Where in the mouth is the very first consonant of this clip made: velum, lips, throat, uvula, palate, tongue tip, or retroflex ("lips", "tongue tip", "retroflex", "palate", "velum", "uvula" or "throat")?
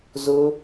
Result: tongue tip